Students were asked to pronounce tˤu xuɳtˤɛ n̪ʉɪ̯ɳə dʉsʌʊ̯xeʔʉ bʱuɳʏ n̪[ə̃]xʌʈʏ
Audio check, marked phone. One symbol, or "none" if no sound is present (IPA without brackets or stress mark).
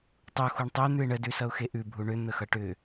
ə